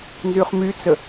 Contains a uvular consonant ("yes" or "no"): yes